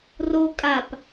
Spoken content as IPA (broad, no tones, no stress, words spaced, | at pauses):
ro kʼap